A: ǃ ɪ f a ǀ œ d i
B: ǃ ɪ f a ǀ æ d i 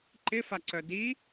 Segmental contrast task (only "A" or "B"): A